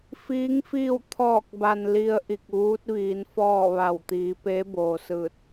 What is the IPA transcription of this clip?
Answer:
f iː˧˥ ŋ f iː˥˨ w t̪ʰ ɔː˧˩ k̚ b a˩ n l i˧ ə̯ ʔ i˧˩ k̚ ʋ uː˧˥ t̚ ʋ iː˩˧ n f ɔː˥˨ ʋ a˧˩ w t̪ iː˩˧ p e˧˥ b oː˩ s ɯː˧˩ t̚

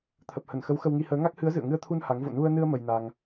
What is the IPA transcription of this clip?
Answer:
t̪ʰ ə˨˩ p̚ h ə˧˩ n x ə˨˦ w x ə˧ w ŋ i˧ h əː˨˦ ŋ a˦˥ k̚ h ɨ˨˦ ə̯ z ɨ̰˧˨ ə̯ ŋ ɨ˧ ə̯ t̪ʰ u˧ n h a˨˦ ŋ v o̰˧˨ n u˧ ə̯ n ɨ˧ ə̯ m ə˧ j n a˧ ŋ

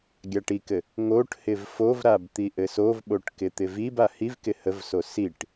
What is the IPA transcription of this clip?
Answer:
ɡʲ a ʈ i k ɘ | ŋ o ʈ h ɪ v f o v ɾ a b t̪ i ʔ ɘ s o v ɓ o ʈ k ɪ t̪ ɪ v i b a h i v k ɪ h ə v s o s i ʈ

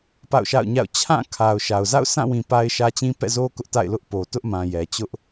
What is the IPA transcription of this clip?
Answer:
p a̰˦˨ ʊ̯ ʃ a̰˦˨ ʊ̯ ɲ a̰˦˨ ʊ̯ t͡ɕʰ ã˦˨ kʰ a˨ ʊ̯ ʃ a˨ ʊ̯ z a̰˦˨ ʊ̯ s ã˦˨ w ĩ˨ p a˦ ɪ̯ ʃ ä˦ t͡ɕ ĩ˦ p ɛ̰˦˨ z o˦ k ʊ˦ ʔ t a̰˦˨ ɪ̯ l ʊ˦ ʔ p o˨ t ʊ˦ ʔ m ã˨ j ɛ˨ t͡ɕ ʊ˦ ʔ

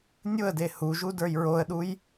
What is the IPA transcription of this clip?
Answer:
nʲ ʊ ə̯ d e h u ʒ u d ə˞ j ɹ o ə̯ ɗ u j

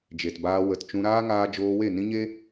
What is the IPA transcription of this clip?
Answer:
d͡ʒ e˨ t b aː˧ w ə˧ t t͡ʃ ũ˧ ɾ aː˦ ŋ aː˧ d͡ʒ oː˧ w e˦˨ n ĩ˦ ɲ e˦

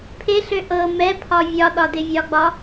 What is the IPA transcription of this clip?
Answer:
pʰ e ɬ ø ʔ ɤ m ɛ pʰ ɒ vʲ ɒ ɗ ɒ d ɪ vʲ ɒ ɡ͡b ɒ

